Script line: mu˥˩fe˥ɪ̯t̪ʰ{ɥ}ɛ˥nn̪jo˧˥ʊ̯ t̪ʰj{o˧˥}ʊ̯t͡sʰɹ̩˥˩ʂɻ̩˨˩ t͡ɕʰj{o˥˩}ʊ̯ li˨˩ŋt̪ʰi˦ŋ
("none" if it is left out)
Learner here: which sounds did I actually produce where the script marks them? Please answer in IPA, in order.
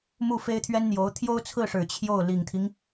ɥ, o˥, o˥˩

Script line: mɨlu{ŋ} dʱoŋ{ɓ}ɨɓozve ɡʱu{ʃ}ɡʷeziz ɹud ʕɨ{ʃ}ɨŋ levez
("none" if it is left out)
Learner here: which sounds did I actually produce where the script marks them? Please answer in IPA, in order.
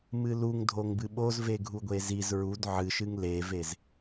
ŋ, b, none, ʃ

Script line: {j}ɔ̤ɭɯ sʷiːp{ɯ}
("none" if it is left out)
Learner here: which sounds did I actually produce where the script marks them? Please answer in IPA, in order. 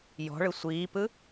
j, ɯ

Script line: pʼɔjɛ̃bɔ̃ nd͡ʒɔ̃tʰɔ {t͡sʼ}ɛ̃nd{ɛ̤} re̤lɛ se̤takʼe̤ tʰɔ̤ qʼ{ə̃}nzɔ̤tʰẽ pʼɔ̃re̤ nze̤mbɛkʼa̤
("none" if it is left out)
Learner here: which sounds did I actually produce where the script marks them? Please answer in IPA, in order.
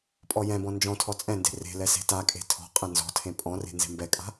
t͡sʼ, e̤, ɛ̃

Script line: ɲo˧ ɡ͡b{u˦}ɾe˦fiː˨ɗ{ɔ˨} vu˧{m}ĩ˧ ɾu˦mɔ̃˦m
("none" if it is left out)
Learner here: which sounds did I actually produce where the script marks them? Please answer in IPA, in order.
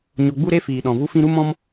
u˦, ɔ̃˨, f

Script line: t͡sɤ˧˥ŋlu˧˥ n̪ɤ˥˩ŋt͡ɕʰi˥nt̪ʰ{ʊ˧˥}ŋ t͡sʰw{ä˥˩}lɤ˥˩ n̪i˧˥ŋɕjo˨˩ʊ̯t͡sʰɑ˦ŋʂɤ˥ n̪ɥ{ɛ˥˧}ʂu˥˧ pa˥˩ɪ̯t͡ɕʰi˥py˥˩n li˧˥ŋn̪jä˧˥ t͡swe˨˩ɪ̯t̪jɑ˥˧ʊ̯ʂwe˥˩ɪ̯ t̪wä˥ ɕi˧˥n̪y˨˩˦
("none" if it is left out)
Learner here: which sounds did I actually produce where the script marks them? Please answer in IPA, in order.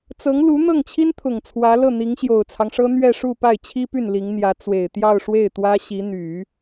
ʊ˨˩, ä˧˥, ɛ˥˧

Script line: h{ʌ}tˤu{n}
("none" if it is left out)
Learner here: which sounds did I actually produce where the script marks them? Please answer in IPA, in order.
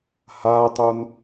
a, n

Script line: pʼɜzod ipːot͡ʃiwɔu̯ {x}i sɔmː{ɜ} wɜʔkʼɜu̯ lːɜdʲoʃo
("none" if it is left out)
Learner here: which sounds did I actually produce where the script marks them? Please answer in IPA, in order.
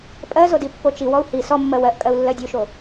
h, ɜ

